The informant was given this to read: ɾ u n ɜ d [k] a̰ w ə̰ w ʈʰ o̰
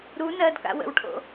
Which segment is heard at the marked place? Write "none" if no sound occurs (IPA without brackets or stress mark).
k